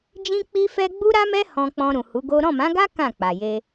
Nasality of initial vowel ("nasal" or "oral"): nasal